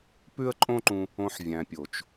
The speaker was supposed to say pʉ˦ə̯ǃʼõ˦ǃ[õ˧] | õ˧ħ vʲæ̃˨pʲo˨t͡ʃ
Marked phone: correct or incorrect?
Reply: incorrect